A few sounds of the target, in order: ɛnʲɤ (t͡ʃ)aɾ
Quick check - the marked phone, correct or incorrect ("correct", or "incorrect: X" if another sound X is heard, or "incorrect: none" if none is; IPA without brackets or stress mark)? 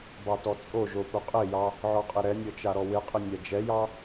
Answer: correct